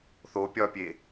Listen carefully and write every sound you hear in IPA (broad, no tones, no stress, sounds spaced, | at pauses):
θ o pʲ ɒ pʲ e